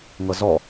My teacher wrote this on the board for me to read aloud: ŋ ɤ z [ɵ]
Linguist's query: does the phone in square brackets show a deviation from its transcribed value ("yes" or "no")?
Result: yes